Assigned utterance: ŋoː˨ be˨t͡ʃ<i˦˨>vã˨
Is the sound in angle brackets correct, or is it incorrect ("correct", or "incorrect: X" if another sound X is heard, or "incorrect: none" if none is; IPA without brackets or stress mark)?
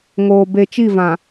correct